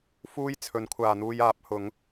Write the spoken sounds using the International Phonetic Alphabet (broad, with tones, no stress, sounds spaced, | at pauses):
f uː˥ j t͡sʰ ɵ˨˥ n kʷʰ aː˨ n̪ uː˧ j aː˨˥ p̚ h ʊ˨˧ ŋ